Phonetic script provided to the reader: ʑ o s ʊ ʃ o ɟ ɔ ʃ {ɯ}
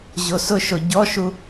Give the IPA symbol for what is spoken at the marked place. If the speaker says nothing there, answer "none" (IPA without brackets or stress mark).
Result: u